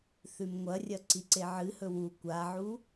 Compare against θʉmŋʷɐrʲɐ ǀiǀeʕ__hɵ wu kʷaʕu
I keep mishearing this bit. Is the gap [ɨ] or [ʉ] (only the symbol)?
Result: ɨ